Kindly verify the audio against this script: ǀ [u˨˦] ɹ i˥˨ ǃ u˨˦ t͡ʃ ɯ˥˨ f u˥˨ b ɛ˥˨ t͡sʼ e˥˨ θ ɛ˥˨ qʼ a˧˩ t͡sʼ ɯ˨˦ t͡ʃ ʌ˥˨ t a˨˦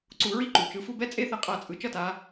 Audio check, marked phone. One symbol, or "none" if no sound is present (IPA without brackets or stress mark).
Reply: u˨˦